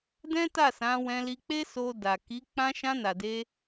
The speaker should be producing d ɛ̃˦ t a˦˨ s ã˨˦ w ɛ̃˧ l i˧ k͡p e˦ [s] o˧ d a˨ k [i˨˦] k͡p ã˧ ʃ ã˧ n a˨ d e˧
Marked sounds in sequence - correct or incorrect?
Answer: correct, correct

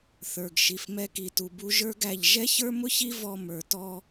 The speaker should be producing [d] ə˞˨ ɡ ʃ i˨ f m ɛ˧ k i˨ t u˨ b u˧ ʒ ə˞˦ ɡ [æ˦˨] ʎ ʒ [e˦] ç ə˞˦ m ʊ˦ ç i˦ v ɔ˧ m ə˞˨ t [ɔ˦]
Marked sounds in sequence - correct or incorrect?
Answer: incorrect: θ, correct, incorrect: ɛ˦, incorrect: ɔ˧

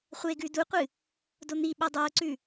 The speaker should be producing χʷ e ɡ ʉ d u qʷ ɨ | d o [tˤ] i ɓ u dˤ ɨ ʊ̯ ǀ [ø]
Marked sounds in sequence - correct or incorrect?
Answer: incorrect: n̪, incorrect: ʉ

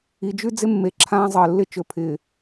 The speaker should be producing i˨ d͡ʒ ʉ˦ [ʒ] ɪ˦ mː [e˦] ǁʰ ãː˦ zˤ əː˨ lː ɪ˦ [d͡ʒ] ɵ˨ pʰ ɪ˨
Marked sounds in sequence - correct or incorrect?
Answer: incorrect: d͡z, incorrect: e˨, incorrect: t͡ʃ

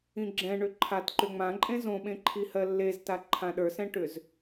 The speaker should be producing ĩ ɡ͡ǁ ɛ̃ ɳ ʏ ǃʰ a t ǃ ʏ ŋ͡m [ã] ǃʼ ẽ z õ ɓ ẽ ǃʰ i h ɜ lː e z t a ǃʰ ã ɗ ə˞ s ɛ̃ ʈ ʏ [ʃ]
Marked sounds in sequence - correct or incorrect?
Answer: correct, incorrect: z

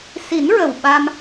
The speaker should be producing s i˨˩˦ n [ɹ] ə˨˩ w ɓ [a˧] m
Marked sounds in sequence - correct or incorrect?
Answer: correct, correct

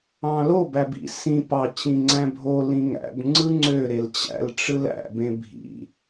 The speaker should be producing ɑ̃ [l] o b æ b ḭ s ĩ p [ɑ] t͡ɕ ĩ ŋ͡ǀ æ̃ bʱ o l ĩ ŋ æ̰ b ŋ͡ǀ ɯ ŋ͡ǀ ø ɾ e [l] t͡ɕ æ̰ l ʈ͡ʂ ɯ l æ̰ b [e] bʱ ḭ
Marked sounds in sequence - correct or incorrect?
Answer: correct, correct, correct, incorrect: ẽ

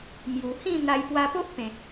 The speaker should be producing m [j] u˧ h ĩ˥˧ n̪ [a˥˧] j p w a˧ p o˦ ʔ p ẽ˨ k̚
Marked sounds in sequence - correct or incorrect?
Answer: correct, incorrect: a˧

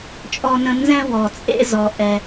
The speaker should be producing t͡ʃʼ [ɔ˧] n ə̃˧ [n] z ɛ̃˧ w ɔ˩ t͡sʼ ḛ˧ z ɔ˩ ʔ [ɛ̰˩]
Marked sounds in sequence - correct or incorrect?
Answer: correct, correct, incorrect: ɛ˩

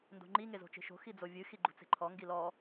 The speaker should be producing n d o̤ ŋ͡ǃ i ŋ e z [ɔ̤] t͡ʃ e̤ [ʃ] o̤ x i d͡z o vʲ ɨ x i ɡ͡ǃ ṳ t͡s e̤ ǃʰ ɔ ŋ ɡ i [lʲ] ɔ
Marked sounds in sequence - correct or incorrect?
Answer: incorrect: o̤, correct, incorrect: l

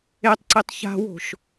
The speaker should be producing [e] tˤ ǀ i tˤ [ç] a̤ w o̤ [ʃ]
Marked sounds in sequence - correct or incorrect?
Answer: correct, correct, correct

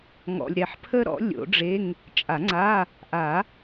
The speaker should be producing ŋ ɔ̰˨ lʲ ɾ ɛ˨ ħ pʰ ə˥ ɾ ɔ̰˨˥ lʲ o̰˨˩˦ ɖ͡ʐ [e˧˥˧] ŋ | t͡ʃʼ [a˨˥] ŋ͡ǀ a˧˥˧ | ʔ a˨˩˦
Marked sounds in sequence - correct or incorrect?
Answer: correct, incorrect: a˨˩˦

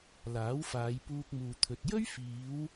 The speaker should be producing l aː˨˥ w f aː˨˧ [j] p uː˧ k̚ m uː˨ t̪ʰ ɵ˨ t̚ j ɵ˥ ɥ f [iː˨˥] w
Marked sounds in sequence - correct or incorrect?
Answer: correct, incorrect: iː˨˧

